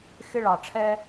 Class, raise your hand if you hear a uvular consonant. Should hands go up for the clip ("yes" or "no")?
no